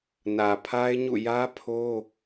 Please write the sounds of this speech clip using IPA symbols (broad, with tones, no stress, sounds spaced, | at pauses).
n ä˨ pʰ a˦ ɪ̯ ɲ ṵ˦˨ j ä˦ pʰ o˦